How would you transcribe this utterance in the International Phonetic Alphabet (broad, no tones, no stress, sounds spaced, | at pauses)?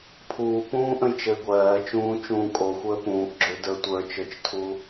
pʰ uː p ũː ʔ ə̃ j t͡ʃ ə ɪ̯ ɡʷ ɜː t͡ʃ ũː t͡ʃ ũː kʼ o xʷ əː p ũː ʔ ɡ͡ǁ ʏ d ə˞ tʷ ə˞ t͡ʃ ə˞ t͡ʃ tʰ u